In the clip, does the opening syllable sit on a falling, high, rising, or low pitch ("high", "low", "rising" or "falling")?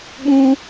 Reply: high